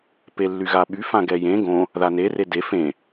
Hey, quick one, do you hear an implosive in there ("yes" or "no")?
yes